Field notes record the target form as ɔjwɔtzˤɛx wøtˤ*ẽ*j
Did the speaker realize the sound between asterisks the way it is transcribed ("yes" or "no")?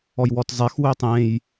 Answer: yes